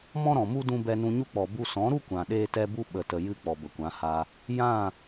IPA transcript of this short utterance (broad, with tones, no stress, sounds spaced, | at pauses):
m ɔ̃˦ ɾ ɔ̃˨ m u˦ d ũ˧ b ɛ˧ n ũ˧ ɲ u˦ k͡p ɔ˨ b u˧ s ɔ̃˨˦ ɾ u˦ kʷ ã˨ ɗ eː˦ t ɛ˦ b u˦ ɓ ə˨ t ə˨ j ɨ˦ k͡p ɔ˨ b ə˨ kʷ ã˨˦ h a˧ | j ã˦˨